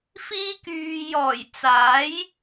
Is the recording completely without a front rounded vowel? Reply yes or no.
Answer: no